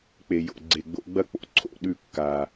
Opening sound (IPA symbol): k͡p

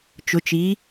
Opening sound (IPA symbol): t͡ʃ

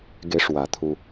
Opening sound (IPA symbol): ɡ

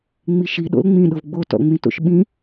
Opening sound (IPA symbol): ŋ͡m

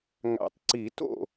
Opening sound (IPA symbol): ŋ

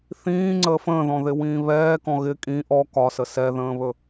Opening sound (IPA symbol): θ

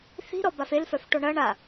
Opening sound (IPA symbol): θ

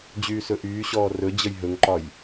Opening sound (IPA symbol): d͡ʑ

